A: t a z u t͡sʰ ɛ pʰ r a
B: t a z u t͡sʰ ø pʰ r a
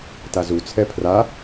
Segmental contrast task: A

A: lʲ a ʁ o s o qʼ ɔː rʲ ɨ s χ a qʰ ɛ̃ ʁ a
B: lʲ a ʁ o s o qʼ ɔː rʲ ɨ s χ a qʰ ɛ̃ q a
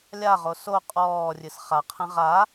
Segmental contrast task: A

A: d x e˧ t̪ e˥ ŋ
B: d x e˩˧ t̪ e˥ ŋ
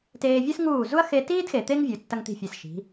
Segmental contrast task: B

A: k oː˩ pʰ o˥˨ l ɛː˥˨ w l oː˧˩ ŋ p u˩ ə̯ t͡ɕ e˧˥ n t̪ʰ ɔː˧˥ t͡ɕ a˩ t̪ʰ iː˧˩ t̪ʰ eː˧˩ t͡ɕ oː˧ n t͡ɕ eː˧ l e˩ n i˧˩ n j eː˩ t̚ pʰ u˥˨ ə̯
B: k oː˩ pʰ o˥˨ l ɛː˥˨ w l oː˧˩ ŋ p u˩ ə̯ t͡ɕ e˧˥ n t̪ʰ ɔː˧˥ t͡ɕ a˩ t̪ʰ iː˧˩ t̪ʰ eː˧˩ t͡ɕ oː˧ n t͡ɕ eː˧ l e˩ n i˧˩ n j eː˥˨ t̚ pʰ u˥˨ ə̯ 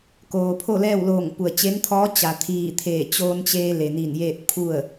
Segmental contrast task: B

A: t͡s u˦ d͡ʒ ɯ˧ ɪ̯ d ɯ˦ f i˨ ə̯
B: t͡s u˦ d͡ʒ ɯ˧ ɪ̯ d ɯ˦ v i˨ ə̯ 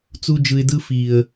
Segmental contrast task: A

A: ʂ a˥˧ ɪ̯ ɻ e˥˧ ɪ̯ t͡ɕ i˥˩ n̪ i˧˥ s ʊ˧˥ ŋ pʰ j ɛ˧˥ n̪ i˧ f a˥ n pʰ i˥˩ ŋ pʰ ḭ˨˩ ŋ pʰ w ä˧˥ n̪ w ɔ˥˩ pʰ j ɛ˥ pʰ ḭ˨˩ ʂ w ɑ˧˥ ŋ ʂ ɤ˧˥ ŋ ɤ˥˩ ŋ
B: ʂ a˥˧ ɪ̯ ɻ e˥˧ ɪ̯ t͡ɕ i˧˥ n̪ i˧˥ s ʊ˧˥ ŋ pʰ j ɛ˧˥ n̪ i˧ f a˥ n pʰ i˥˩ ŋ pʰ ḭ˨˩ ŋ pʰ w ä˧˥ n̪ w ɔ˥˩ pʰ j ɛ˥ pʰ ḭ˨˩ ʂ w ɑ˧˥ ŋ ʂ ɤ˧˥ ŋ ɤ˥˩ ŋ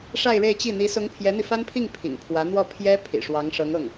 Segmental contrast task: A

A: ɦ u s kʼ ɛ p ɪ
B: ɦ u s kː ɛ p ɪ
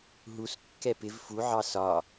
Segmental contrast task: B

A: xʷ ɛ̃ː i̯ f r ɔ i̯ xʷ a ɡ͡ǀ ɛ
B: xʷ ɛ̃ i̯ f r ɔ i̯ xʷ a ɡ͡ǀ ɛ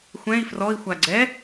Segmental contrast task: B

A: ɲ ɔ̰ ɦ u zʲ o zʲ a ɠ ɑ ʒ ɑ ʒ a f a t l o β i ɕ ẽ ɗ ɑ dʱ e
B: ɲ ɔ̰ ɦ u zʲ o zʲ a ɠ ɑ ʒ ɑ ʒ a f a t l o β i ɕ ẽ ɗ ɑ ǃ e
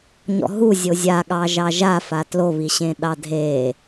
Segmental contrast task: A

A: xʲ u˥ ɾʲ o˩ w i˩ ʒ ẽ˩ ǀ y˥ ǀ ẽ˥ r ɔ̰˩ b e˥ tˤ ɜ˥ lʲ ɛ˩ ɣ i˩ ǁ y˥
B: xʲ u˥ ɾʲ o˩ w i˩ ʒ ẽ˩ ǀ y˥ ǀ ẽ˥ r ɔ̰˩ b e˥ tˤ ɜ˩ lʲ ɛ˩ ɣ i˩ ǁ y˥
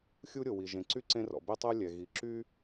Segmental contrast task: A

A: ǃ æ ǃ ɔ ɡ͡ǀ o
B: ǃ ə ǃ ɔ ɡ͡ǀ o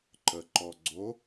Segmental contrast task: B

